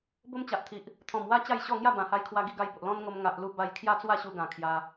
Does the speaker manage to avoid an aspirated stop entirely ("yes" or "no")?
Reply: no